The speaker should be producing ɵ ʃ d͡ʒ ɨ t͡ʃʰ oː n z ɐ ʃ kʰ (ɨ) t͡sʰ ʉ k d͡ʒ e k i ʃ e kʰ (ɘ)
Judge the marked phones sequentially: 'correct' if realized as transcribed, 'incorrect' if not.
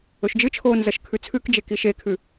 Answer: incorrect: ʉ, incorrect: ʉ

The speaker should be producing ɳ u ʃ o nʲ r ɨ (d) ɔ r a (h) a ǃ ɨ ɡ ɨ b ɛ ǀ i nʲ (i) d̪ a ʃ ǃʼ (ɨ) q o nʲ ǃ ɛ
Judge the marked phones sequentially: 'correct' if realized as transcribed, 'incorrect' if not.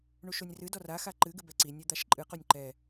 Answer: correct, incorrect: x, incorrect: ɨ, correct

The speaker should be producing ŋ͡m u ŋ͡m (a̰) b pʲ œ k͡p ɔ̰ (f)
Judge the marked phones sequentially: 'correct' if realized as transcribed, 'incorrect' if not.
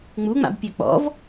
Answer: correct, incorrect: v

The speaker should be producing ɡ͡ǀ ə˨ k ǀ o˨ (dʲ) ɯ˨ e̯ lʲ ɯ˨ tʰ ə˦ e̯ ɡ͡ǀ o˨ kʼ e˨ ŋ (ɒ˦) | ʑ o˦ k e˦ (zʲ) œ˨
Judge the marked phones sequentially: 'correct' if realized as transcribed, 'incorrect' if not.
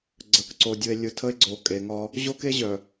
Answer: correct, correct, incorrect: ʑ

